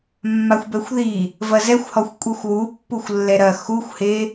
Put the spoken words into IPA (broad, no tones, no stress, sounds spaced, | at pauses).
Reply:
mː a xʷ b ɛ xʷ ð i | v ɐ z ɛ xʷ h ɔ xʷ kʷʼ i xʷ w u pː u xʷ lː ɛ ɾ ɐ x u xʷ h e